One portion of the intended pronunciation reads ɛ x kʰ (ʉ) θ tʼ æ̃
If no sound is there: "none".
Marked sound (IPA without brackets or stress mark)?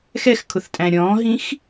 ʊ